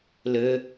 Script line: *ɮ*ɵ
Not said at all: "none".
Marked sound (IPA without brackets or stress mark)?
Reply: l